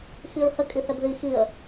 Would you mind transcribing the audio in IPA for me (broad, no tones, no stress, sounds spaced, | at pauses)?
x i ɹ h ə kʼ i θ ɛ b ð i x i ə̯